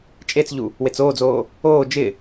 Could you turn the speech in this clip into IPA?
t͡ʃʼet͡sʎu | wet͡soːd͡zoː | oː d͡ʒɪ

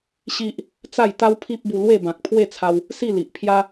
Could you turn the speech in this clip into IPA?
ɕi˦ʔ | t͡sa˥˧jt̪a˦wpʰi˦p̚bu˧ lwe˥˧bã˨k̚pʰwe˥˧t͡sʰa˧w | si˥˧li˨ʔpʰja˦

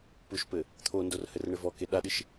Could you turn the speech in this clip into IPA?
puʃpɘ | t̪ʰondor hɘrɳɘvɔke ɗaɗɨʃ

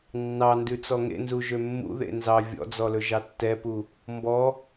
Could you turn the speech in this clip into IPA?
nːɑndʉ t͡sɔŋḛnzu ʒømːṵðḛ nzɑ vʲɔ̰d͡zɔ lɵʒɑtːɛpu | mbɔ

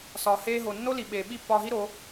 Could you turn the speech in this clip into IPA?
sɒː˩ heː˧ɦo˩ nːo˥li˩ ɓeː˩ ɓi˥˩pːɒː˧ɦi˥ ɾo˩˥

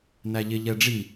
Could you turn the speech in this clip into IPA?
næʎɪ ʎɛɖ͡ʐi

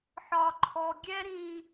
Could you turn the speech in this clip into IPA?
ħɒ˦ǃʰɔ˦ ɡʲɛ˦ɾĩ˦

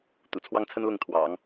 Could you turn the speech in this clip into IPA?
t̪ṵ˨˩t͡sʰwɑ˥ŋt͡sʰə˥nlʊ˥˩ŋ t̪ʰwɑ̰˨˩˦ŋ

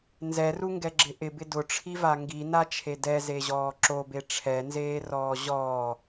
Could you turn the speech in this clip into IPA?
nzɛruŋɡɛɡ͡ǁɪ ʔɪbɪ dʊʈ͡ʂʰiva ŋɡinat͡ʃʰe dɛzeʑɔː ǁobe ʈ͡ʂʰɛnzeːrɔː ʑɔː

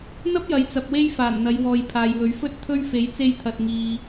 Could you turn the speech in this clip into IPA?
n̪ɐ˥p̚jɐ˨˧jt͡sɐ˨p̚ we˥jfaː˨˩nn̪ɐ˨˧j wɔː˨jpʰaː˨jwɵ˨˥ɥfɵ˥t̚ t̪ʰɵ˥ɥ fe˨˥jt͡se˧jt̪ʰɐ˨t̚ŋiː˨

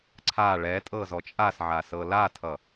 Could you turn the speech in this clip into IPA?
ǀʰa ɭɛtʼɤzɔ t͡ʃʼasʕasɤ latʰʌ

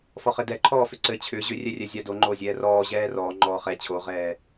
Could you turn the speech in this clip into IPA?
fɔχɘdɛ ǃʰɔːfʏǀɘ t͡ɕʰʏ ʑʏrʲɛrʲɛ zʲadoŋ͡ǃoːzʲɛː rɔː ʑɛːrɔː ŋ͡ǃɔːχɛ t͡ɕʰoʁɛː

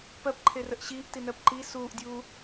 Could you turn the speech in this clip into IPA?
pɜpǃʰerəʔ ɕiːʔtinɜp ǃi suːʔdʲuː

